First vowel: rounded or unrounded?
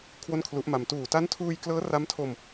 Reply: rounded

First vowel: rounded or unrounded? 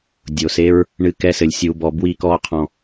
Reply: rounded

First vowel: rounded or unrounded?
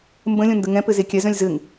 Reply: unrounded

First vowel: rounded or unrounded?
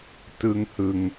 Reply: unrounded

